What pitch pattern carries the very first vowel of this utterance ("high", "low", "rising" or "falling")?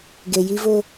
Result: low